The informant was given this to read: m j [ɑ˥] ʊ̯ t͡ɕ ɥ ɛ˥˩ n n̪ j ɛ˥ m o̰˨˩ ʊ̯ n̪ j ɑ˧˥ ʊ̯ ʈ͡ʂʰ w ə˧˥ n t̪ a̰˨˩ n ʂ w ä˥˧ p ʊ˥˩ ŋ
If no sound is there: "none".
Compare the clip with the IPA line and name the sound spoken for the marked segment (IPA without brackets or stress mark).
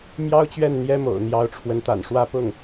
ɑ˥